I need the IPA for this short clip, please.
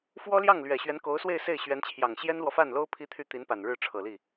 f w ɔ˥ l j ɑ˥˩ ŋ l ɥ ɛ˨˩ ɕ ɥ ɛ˧˥ n k o˧˥ ʊ̯ s w e˥˧ ɪ̯ s e˥˩ ɪ̯ ɕ ɥ ɛ˧˥ n t͡ɕʰ j ɑ˨˩ ŋ ɕ j ɛ˥ n l w ɔ˨ f a˥˩ n l o˥ ʊ̯ pʰ i˥ t̪ʰ y˥˩ t̪ i˧˥ n p a˨˩ n ɻ ɻ̩˥˩ ʈ͡ʂʰ ɤ˨˩ l i˥˩

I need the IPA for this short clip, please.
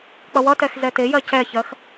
k͡p ʌ w ʌ t ɛ x z ɛ t e j ɜ c ɛ ç ɜ x

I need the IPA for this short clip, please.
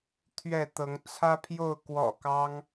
t̪ʰ ɥ ɛ˥˨ t̪ ɤ˨˦ ŋ t͡sʰ ä˦ pʰ j o˥˨ ʊ̯ k w ɔ̰˨˩ k ɑ˦ ŋ

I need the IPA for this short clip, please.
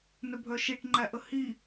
n œ bʱ œ ʃ i ʈ ŋ͡ǃ æ ʔ ə h i

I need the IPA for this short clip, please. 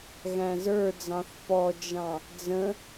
ɣ æ̃ z ə˞ d͡z ɑ̃ θ p ɔ d͡ʒ ɑ̃ | d͡z ə̃

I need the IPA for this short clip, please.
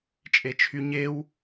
t͡ʃʼ e t͡ʃʰ y ɲ e w

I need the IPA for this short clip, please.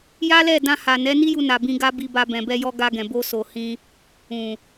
j a˦ l ɛ˦˨ d ã˧ h a˨ n ɛ˨˦ n i˦ j u˧ n a˨ b ĩ˧ ɡ a˦ b i˧ b a˧ b ɛ̃˨ b ɛ˧ j ɔ˧ ɡ a˧ ɡ ɛ̃˨ b o˧ s o˨ h ĩ˧ | ũ˨

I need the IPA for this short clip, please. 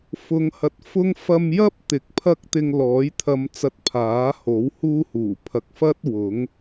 f ʊ˨˧ ŋ h ɐ˨˥ t̚ f ʊ˥ ŋ f ɐ˧ m j ɐ˥ p̚ t̪ ɪ˨˥ k̚ pʰ ɐ˥ k̚ t̪ ɪ˧ ŋ l ɔː˨˥ j t̪ʰ ɐ˨ m t͡s ɐ˨ t̚ pʰ aː˨˥ h o˨˥ w h uː˥ h uː˨˩ pʰ ɐ˨ k̚ f ɐ˥ t̚ w ʊ˨˥ ŋ

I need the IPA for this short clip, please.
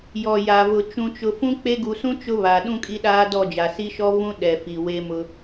j ɔ˨ j a˨ v ʊ˨ t͡ʃ ũ˨ t͡ʃ ʊ˨ f ũ˦ k͡p e˦ ɡ u˨ s ũ˦ t͡ʃ ʊ˦ β a˨ ɗ ũ˦ kʼ i˦ ɗ aː˦ d ɔ˦˨ d͡ʒ a˨ s i˦ ʃ ɔ˦ v ũ˦ ɗ ɛ˨ f i˨ w e˦ m ʊ˦

